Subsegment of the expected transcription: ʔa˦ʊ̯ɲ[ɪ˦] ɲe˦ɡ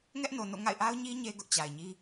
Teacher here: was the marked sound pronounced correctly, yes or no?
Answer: no